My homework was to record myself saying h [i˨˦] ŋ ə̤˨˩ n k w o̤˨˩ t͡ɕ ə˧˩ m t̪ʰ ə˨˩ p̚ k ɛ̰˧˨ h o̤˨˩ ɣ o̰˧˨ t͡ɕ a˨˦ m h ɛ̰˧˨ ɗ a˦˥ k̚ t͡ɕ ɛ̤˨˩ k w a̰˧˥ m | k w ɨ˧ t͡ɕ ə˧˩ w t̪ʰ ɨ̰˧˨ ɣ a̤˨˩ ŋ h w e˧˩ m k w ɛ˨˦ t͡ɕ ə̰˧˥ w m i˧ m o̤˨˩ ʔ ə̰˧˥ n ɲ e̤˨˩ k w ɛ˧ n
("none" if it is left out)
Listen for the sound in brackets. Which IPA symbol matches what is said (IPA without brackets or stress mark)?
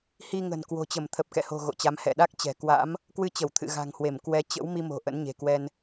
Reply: i˧